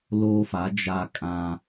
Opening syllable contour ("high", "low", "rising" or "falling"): high